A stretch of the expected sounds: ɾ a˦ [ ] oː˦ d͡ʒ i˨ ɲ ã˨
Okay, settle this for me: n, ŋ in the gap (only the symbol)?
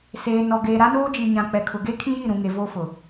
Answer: n